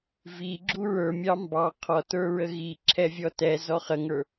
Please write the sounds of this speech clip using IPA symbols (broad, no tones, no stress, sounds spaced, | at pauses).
v i ɡ͡ǁ u ɹ ə˞ mʲ ɑ m b ɑ qʰ ɔ t ə˞ ɹ ə ɣ i ǁʰ ɛ vʲ ɔ t ɛ z ɔ χ ə ŋ ə˞